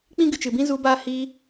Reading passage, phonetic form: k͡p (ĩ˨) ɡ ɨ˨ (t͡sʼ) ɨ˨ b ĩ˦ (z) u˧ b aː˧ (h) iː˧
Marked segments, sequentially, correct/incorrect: incorrect: ĩ˦, incorrect: t͡ʃ, correct, correct

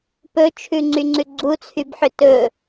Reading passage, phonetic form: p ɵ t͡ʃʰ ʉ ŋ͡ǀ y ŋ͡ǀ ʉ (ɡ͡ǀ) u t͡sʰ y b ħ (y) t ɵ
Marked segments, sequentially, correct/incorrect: correct, incorrect: ʏ

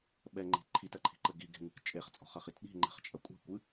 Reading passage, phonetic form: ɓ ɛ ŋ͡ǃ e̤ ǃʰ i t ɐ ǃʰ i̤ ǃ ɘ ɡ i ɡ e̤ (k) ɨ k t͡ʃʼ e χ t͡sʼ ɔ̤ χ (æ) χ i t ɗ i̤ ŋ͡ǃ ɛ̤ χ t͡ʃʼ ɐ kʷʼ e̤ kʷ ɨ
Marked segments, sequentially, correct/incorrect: incorrect: ŋ, incorrect: ɐ

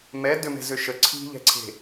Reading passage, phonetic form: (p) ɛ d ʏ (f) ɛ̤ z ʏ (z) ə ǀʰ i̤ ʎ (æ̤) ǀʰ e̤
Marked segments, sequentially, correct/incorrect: incorrect: m, incorrect: m, incorrect: ʃ, incorrect: ɛ̤

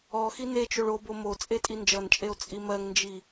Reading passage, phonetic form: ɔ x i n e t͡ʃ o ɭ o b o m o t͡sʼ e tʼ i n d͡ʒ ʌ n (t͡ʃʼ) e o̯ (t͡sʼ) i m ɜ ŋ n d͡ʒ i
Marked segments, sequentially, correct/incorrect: correct, correct

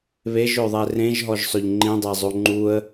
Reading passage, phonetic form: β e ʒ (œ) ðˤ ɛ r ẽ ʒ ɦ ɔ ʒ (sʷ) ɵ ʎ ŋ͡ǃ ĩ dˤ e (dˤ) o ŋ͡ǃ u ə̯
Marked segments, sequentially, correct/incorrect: incorrect: ɵ, incorrect: sˤ, incorrect: zˤ

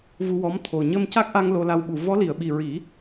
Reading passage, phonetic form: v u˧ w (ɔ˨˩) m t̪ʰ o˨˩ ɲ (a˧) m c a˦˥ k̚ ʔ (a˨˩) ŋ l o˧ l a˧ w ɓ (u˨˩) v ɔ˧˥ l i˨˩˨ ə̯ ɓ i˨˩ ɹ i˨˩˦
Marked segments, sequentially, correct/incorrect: incorrect: ɔ˧˥, incorrect: ə˧, incorrect: a˧, correct

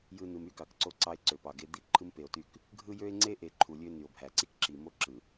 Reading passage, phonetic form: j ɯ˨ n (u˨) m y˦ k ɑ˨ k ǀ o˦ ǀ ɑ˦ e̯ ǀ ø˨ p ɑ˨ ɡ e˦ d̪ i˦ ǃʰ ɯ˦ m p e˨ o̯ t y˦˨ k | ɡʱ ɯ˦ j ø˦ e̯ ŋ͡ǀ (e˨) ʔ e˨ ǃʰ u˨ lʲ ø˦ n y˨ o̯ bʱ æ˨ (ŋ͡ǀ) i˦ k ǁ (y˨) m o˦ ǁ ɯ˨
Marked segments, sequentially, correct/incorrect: incorrect: ɯ˨, incorrect: e˦, incorrect: ǀ, incorrect: i˨

